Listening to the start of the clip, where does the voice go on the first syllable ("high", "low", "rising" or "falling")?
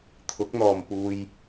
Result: rising